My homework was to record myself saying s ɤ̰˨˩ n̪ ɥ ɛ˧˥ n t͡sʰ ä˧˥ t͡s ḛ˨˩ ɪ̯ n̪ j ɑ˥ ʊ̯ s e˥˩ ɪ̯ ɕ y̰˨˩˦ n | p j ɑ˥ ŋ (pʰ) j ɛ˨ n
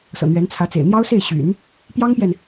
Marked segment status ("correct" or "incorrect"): incorrect